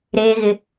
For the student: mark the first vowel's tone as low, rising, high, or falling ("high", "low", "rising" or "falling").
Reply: high